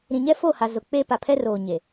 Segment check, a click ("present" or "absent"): absent